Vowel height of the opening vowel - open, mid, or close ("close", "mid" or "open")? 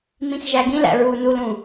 close